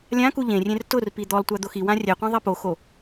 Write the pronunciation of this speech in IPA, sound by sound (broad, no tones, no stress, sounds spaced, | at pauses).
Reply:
lʲ ã k u ʎ ẽ rʲ ẽ r t ʊ r p i d̪ ɔ lˠ tʷ a d̪ o x i w ã rʲ ɛ qʷ ã ðˤ i p o x o